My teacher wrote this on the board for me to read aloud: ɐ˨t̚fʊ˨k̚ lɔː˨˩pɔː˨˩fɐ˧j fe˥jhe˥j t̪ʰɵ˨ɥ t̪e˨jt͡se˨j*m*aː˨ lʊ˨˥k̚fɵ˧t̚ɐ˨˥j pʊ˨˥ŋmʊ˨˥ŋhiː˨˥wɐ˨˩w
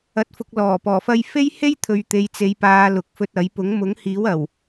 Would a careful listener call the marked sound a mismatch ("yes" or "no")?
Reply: yes